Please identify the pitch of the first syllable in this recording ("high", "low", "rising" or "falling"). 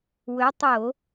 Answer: rising